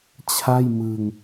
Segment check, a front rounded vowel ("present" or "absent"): absent